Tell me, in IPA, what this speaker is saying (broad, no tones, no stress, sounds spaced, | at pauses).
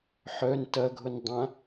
ħ œ n t ɐ ɡʱ ʊ n dˤ ã